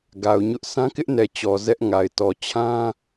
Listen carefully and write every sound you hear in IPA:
ɡ a˨ ʊ̯ ɲ ʊ˦ ʔ sʰ ã˦ k ɪ˦ ʔ n ɛ˨ t͡ɕ ɔ˨ z ɛ˦ ʔ ŋ a˨ ɪ̯ t ɔ˨ t͡ɕʰ ã˦

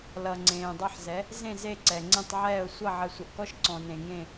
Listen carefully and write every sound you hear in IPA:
l ʌ˨ ŋ͡ǀ ẽː˨ dˤ ʌ˦˨ ħ z ɛ˨˦ | z ẽ˦˨ z e˦˨ ǀ ɛ˨ ŋ͡ǀ ẽ˦˨ tˤ ʕ ɛː˦˨ ʊ̯ sʷ ʌ˦˨ ʕ ə˨ sʷ ə˨ ʔ k ɔ˦˨ ʃ ǀ ɔ̃˨ n ẽ˨ ŋ ẽ˦˨

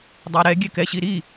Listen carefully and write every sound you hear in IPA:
dˤ a ɾ ɛ ɡʲ ɛ k ɛ ɕ i ɾ i

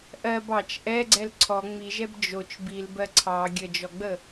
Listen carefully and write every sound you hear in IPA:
ʔ ɜ b ɑ t͡ʃ ʔ ɛ ɡ͡ǀ ɛ l ǀʰ ɔ ŋ͡m i ʒ ɛ b d͡ʒ o t͡ʃ b i l b ɜ ǀʰ ɑ ɡʲ ə d͡ʒ ɔ ɡ͡b ə

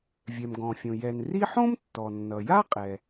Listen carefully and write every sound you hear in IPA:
vʲ ɛ˩ m ɡ ɔ̃˩ fʲ õ˩ j ɛ˩ n r i˥ ħ õ˥ m tː ɔ˩ nː ʌ˩ j a˥ qʼ ɛ˩

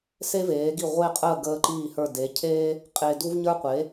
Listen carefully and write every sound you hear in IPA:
s e˥ v eː˩˥ ɡ i˥˩ ʁʷ e˥˩ qʼ əː˥˩ ɡ əː˧ ǃ iː˥˩ h ə˞˥˩ d e˩˥ cʰ eː˥ | qʼ eː˧ d u˥ v ɲ ə˞˥ qʷ e˩˥

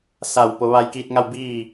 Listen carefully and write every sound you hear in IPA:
s a˧˩ w p o˩˧ ʋ a˧ j k iː˧ t̚ ŋ a˥˨ w b iː˥˨

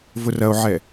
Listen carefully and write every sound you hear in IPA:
v ʊ r ɐ o̯ ʕ ɛ

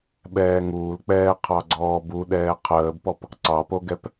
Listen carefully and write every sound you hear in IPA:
ɓ ɛː ŋ uː l k͡p ɛː qʰ ɑ ɡ͡ǀ ɔː b u ɗ ɛː qʰ əː b p ɔ p | ǀ ɑ p o ɡ ɛ p

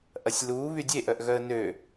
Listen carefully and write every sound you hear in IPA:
ʔ ɐ sʲ l uː β y dʲ e ʔ œ ʔ ɣ œ ə̯ n ø

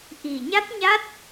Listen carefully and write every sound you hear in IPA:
ʔ i˨˩ ɲ a˦˥ t̚ ɲ a˦˥ t̚

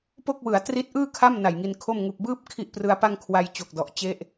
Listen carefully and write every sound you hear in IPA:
p o˥˩ k̚ w ɯ˩˦ a̯ t r i˦˥ t̚ ʔ ɯː˥˩ kʰ a˥˩ m n a˨˩ j ŋ i˧ n kʰ o˥˩ m ŋ u˨˩ k̚ b ɯː˥˩ p̚ kʰ i˥˩ ʔ p r ɯ˦˥ a̯ p a˥˩ ŋ kʰ w a˧ j t͡ɕ o˨˩ k̚ d ɔ˨˩ ʔ t͡ɕ e˥˩ ʔ

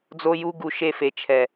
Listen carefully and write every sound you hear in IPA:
d͡z o˧ j u˧ ɡ u˨ ʃ e˧ f e˨ t͡ʃʰ ɛ˨

